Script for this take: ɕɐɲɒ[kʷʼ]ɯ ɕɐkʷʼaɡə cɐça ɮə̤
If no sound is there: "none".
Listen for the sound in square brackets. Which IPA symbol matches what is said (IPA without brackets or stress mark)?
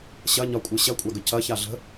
kʷʼ